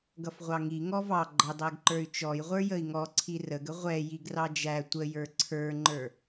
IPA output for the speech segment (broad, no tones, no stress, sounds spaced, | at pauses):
ɡ ʌ f ʁʷ ɑ ŋ i ŋ ɔ v ɑ ɡ͡ǃ ʌ dˤ æ ɡ ǃ ə˞ y̯ t͡ʃ ɔ j ʁʷ ə˞ j ə i̯ ŋ ɔ ǀʰ i r ə ɡ ə ʁʷ ɛ j i ɡ r ɑ d͡ʒ æ tʷ ə j ə˞ ǀʰ ə˞ ŋ͡ǃ ə˞